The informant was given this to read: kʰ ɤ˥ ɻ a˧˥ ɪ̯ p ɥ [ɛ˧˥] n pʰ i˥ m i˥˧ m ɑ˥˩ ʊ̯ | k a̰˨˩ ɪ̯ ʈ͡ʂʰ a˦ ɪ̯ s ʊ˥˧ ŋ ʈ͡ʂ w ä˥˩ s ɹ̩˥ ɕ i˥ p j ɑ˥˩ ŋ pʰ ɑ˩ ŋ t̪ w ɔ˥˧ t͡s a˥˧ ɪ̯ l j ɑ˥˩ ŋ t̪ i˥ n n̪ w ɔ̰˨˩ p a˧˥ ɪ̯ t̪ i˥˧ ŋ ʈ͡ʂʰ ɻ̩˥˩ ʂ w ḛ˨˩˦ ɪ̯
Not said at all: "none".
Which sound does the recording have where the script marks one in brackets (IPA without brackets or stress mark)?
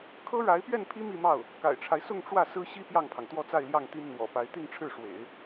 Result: ɛ˥˩